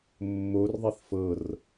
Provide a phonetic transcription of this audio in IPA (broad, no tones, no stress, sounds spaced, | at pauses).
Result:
mː o r ðˤ i θ f ɤ r